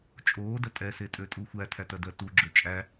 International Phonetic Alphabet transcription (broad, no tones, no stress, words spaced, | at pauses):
t͡ʃʼoːdɐ tʼɛsetʼøtʼu xʷætʰætɐdɜ tuɡ͡ǁø t͡ʃʼæ